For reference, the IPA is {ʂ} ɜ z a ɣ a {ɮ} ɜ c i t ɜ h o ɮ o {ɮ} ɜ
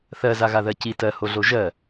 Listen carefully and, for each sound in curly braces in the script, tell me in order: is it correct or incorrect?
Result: incorrect: θ, incorrect: ð, incorrect: ʒ

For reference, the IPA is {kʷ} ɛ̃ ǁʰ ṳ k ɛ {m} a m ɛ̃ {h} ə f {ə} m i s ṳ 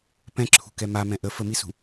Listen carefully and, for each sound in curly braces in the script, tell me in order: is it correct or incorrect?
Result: incorrect: p, correct, incorrect: ʔ, correct

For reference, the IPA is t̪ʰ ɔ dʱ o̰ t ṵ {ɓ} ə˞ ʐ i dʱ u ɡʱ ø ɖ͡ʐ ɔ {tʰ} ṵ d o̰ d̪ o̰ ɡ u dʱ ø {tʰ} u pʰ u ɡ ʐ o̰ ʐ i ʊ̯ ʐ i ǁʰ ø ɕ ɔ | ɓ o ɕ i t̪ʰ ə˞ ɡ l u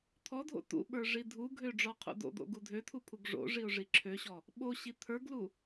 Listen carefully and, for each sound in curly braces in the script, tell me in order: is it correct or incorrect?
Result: correct, incorrect: qʰ, correct

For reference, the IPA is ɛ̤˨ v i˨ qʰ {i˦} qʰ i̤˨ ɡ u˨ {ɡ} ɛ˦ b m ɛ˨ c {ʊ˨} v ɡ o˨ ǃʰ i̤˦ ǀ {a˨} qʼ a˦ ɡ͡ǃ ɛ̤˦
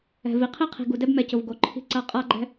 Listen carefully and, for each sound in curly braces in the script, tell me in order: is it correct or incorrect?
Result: correct, incorrect: d, correct, incorrect: a˦

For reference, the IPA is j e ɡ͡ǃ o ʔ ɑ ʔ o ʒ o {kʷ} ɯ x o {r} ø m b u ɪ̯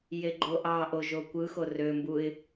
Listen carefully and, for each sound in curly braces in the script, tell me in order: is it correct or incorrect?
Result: correct, correct

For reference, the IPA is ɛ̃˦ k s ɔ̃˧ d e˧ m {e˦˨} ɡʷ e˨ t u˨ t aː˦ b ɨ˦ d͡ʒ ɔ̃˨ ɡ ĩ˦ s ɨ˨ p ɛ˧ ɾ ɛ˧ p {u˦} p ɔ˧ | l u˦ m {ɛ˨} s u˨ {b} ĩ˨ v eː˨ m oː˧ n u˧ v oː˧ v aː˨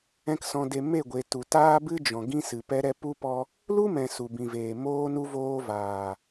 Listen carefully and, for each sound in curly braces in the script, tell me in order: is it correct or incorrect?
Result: correct, incorrect: u˧, incorrect: ɛ̃˨, correct

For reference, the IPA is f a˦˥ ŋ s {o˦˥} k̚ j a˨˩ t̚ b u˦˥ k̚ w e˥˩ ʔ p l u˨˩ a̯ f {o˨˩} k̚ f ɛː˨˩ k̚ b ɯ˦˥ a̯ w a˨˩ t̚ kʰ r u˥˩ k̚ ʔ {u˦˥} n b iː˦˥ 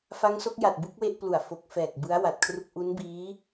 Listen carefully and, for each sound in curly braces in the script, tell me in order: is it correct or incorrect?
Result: correct, correct, correct

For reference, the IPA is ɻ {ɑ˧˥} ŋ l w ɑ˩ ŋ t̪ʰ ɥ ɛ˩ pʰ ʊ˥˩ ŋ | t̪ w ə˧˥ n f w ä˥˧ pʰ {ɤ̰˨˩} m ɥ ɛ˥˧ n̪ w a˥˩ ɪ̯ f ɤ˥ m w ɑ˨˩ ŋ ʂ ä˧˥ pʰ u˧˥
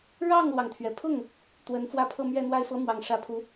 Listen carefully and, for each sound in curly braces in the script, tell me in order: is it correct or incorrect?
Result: incorrect: ɑ˥˩, incorrect: ɤ˥˧

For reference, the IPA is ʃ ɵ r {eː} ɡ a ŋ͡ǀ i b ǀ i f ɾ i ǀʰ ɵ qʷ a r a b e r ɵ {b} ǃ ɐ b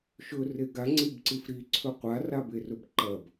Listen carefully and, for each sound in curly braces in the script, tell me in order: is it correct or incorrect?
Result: incorrect: e, correct

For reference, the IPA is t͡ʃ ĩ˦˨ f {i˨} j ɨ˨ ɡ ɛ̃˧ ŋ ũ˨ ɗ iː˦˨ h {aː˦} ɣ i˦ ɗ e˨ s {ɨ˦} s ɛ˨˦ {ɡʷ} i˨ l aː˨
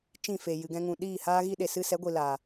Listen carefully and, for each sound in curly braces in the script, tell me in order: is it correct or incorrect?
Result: incorrect: e˨, correct, correct, correct

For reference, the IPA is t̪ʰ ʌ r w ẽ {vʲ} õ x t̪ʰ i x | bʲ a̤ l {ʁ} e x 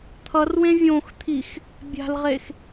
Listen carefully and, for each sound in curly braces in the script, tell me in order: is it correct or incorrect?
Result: correct, correct

